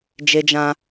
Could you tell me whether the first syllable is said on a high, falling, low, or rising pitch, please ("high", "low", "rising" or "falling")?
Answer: high